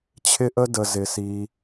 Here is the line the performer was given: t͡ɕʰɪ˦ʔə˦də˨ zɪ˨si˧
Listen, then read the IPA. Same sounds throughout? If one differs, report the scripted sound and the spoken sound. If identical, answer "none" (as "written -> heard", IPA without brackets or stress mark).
none